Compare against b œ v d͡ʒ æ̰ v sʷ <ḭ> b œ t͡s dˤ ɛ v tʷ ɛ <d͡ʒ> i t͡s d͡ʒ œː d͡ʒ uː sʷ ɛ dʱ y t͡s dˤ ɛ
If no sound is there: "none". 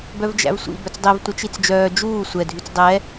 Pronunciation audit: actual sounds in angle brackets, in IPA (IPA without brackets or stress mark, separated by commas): ḭ, t͡ʃ